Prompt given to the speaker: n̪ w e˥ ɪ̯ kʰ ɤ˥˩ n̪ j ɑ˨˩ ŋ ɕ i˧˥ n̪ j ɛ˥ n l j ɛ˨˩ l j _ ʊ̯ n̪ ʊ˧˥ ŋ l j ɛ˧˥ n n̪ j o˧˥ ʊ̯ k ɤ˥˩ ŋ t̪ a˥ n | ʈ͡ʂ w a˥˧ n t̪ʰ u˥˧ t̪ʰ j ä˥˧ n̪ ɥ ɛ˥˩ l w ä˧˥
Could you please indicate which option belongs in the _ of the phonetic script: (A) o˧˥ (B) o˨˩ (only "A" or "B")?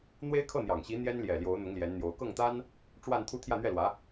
A